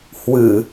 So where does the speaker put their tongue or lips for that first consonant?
throat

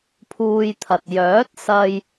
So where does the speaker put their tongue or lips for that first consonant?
lips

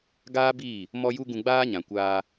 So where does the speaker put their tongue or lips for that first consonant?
velum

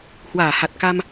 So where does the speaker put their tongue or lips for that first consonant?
throat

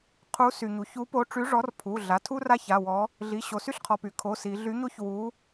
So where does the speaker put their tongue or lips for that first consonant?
uvula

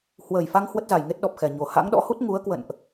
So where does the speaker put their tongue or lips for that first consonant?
throat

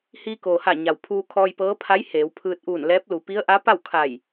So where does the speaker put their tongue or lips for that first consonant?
throat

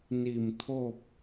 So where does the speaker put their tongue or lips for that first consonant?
tongue tip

